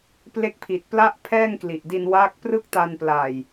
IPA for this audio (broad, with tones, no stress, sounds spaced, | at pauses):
p l e˦˥ k̚ pʰ i˨˩ t̚ p l a˥˩ ʔ pʰ ɛː˥˩ ŋ k l i˨˩ ʔ d i˧ n w a˦˥ k̚ p r ɯ˥˩ k̚ t a˧ n p l a˨˩ j